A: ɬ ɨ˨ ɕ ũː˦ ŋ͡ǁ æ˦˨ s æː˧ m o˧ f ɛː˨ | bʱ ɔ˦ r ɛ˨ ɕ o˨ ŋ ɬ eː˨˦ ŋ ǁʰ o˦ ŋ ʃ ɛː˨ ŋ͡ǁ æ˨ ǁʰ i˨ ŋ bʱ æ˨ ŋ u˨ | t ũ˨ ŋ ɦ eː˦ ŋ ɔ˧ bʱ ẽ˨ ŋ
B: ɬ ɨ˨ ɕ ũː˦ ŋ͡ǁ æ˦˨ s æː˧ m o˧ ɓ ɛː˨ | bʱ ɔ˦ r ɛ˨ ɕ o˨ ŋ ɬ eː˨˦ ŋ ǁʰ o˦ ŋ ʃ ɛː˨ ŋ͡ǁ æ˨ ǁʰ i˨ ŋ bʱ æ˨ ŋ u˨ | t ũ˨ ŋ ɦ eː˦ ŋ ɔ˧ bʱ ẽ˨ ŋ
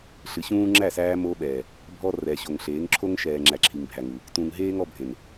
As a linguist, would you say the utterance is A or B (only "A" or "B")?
B